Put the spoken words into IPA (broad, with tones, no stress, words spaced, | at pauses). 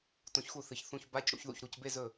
tõ˧˥çxu˥˩θɨ˧˩çθũ˧˥˧ç ba˧˥˧c ɽṵ˧˥çðṵ˥˩ç ɾu˥˩cbe˥˧zɵ˥˩